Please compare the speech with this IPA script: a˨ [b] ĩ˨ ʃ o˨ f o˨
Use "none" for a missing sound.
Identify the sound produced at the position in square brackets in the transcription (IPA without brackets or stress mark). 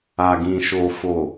ɡ